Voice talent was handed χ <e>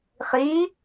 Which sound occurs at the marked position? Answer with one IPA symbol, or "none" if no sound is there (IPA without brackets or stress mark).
i